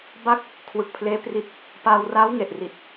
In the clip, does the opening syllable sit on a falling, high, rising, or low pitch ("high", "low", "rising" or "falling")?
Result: falling